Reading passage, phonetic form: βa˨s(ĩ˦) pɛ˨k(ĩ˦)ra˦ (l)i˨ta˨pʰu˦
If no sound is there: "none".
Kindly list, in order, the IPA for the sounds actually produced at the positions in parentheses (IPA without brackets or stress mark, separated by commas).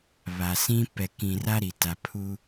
ĩ˦, ĩ˨, ɾ